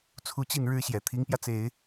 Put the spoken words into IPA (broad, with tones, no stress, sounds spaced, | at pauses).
t͡sʰ u˧˥ t͡ɕ i˥˩ n ɻ ɻ̩˥ ɕ j ɛ˨˩ t̪ʰ i˧˥ ŋ p j ä˧ t͡s e˨˩˦ ɪ̯